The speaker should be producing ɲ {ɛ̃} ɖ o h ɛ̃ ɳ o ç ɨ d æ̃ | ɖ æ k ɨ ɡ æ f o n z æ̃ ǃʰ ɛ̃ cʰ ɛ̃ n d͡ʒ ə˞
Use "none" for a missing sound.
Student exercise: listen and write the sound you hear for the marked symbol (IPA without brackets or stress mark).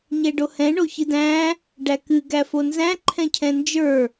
ɛ